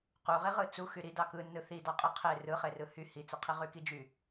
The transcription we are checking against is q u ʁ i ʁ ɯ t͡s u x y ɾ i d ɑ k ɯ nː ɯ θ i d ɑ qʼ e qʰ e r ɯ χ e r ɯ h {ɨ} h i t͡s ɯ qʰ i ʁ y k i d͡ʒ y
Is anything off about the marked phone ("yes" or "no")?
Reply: yes